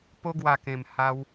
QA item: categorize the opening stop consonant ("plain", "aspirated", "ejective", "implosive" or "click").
plain